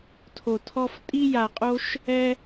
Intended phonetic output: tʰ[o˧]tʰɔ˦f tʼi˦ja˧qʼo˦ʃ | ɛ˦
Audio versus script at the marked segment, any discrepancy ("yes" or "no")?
no